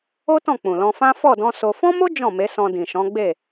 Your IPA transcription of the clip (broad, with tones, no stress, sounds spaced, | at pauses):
o˦ t ɔ̃˦˨ k͡p ũ˨ l ɔ̃˧ f ã˦ f ɔ˦˨ d ɔ̃˧ s o˧ f ɔ̃˦ m o˦ d͡ʒ ɔ̃˦˨ m e˨˦ s ɔ̃˧ d ĩ˨ ʃ ɔ̃˨˦ ɡ͡b e˦˨